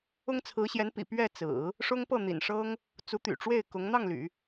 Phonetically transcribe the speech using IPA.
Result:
ʊ˥ ŋ t͡sʰ ɹ̩˧˥ ɕ j ɛ˧˥ n p ḭ˨˩ p ɥ ɛ˥˩ t͡s ɹ̩˨˩˦ | ʂ ʊ˥ ŋ p ɤ˥˩ n̪ ḭ˨˩ n ʂ ɤ˥ ŋ | t͡s u˧˥ t̪ y̰˨˩ ʈ͡ʂ w e˥˩ ɪ̯ k ʊ˧˥ ŋ n̪ ɑ˥˩ ŋ l y̰˨˩˦

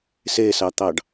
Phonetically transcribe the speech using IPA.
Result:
s e s ɑ t̪ ɑ ɖ

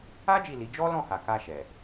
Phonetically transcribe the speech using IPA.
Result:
a˦ d͡ʒ i˦˨ l i˨˦ d͡ʒ ɔ˦ l ɔ̃˦˨ h a˨ k a˧ ʃ ɛ˨

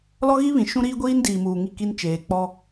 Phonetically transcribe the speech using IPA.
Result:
l ɔ˦ ɣ i˦ β ĩ˨ ʃ ũ˦ ɾ iː˦ ɡʷ iː˦ n d iː˨ m uː˨ ŋ i˦˨ k i˦ n t͡ʃ eː˨ k͡p ɔ˦

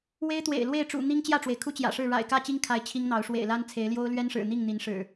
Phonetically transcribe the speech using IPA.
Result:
w e˦ ɪ̯ t̪ w ḛ˨˩ ɪ̯ l w e˥˨ ɪ̯ ʈ͡ʂ ṵ˨˩ n̪ i˦ ŋ t͡ɕ j ä˥˨ ʈ͡ʂ w e˩ ɪ̯ kʰ u˦ t͡ɕ j ä̰˨˩ ʂ ɻ̩˥˨ ɻ a̰˨˩ ɪ̯ k ä˥˨ t͡ɕ i˦ ŋ kʰ a˨˦ ɪ̯ t͡ɕʰ i˦ ŋ n̪ ɑ˨˦ ʊ̯ ʂ w ḛ˨˩ ɪ̯ l a˦ n t͡sʰ e˨˦ ɪ̯ l j o˦ ʊ̯ l ɥ ɛ˦ n ʂ ɻ̩˨˩ n̪ i˥˨ ŋ n̪ i˨˦ n ʂ ɻ̩˨˩

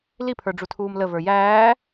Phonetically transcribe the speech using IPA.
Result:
l i pʰ ə˞ ɖ͡ʐ u tʰ uː m l ə v ə˞ j æː

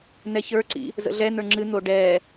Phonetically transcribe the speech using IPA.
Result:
n ɛ ç ə˞ ǀ ḭ | z ə̰ ɮ ɛ n ə˞ ŋ͡ǁ ɨ n̪ o ɖ ɛ

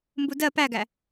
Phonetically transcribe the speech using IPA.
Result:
m b u d ɜ p æ ɡ æ

